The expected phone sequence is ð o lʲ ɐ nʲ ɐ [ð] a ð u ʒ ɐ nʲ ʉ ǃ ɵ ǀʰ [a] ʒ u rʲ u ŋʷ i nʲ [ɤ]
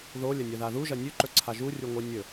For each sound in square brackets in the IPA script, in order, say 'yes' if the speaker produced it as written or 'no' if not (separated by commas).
yes, yes, no